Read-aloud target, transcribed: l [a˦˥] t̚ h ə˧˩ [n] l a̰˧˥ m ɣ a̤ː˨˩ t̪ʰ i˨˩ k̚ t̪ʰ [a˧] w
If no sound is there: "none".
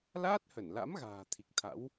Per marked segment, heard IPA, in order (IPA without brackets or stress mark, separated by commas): aː˦˥, n, a̰˧˥